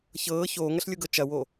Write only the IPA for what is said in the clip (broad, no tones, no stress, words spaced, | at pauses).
çɤː çoːŋɐɬlʲoɡɤ t͡ʃɐwo